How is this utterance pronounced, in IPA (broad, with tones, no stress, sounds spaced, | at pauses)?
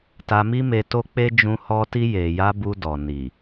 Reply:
t a˧ m i˦ m e˧ t o˦ k͡p e˦ d͡ʒ ũ˧ h ɔ˦ t i˧ j e˨ j a˧ b u˧ d ɔ˨ n i˨